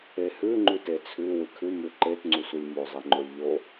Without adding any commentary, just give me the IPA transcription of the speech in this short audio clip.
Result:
e h ʉ ŋ͡ǃ ʉ t e t͡sʰ ʉ w ɨ kʰ ʉ m ʉ ǃ e t ŋ͡ǀ u sʷ ɨ lʲ m o zˤ e ŋ͡ǃ o lʲ ʎ o

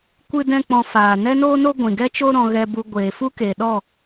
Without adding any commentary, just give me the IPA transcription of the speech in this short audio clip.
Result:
kʷ ɨ˦ d ɛ̃˦ k͡p ɔ̃˧ f aː˨ n ɛ˦ n oː˦ n o˦ ɡʷ ĩ˨ ɡ ɛ˦ t͡ʃ o˦ ɾ ɔ̃˧ ɣ ɛ˧ b u˧ ɡʷ eː˨ f u˦ k e˨ ɗ ɔ˦˨

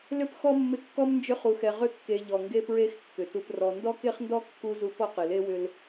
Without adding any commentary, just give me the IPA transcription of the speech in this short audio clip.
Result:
l ʏ˥ p x ɔ˥ mː ɪ˦ kː ɔ˥ m n d͡ʒ ʏ˦ χ u˨ x ɛ˨ ʁ ʏ˦ kː e˨ ʎ ɔ˩ ŋ ɡ e˦ p ɹ e˦ x kː ʏ˩ t u˨ p r ɔ˨ n d ɔ˥ k e˥ χ n d ɔ˥ kː u˦ z u˦ p ɔ˥ q ɪ˩ l e˥ w ʏ˦ l

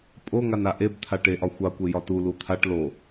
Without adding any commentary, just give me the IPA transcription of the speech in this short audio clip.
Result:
pʼ o ŋ a n a ʔ e b t̪ʰ a ʈ e ʔ ɒ xʷ ɑ kʷ e j ɒ t u l u t̪ʰ a ʈ l o

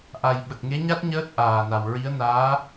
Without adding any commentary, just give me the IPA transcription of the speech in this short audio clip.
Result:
ʔ a˨˩ j ɓ ə˨˩ k̚ ŋ e˧˥ ɲ a˦˥ t̚ ɲ əː˦˥ t̚ ʔ aː˨˩ n a˨˩ w ɹ i˧˥ ə̯ n aː˧˥

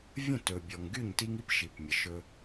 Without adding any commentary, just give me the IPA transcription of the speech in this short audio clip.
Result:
vʲ ə̃˦˨ t ɵ˨ bʲ ɔ˨ ŋ ɡ y˦˨ ɲ t i˦ ŋ i˦ p ʃ i˨ p mʲ ə˨ ʃ ɵ˦

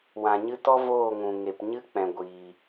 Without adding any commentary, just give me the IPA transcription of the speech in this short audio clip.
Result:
w ã˨ ɲ ɨ˧ t ɔ˦ v oː˦˨ ŋ ũ˨ ŋ e˨ p ɲ ɨ˦ k͡p ɛ̃˨ ɡʷ iː˨

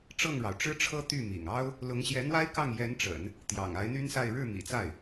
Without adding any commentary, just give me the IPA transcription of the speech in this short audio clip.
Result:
ʈ͡ʂ ɤ˥˩ ŋ ɻ ɑ˩ ʊ̯ ʈ͡ʂ ɻ̩˥ ʈ͡ʂʰ ɤ˥ t̪ y˥˩ m ḭ˨˩ ŋ ɑ˥ ʊ̯ | l ʊ˧˥ ŋ ɕ j ɛ˧˥ n̪ w a˥ ɪ̯ k ɑ˥˩ ŋ j ɛ˧˥ n ʈ͡ʂ ə̰˨˩˦ n | t̪ j ɑ̰˨˩ ŋ a˧˥ ɪ̯ n̪ y˥ n s a˥˧ ɪ̯ ɻ ɻ̩˥˩ m ḭ˨˩ t͡s a˥˩ ɪ̯

